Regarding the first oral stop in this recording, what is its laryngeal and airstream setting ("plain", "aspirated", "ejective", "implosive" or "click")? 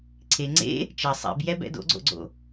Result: click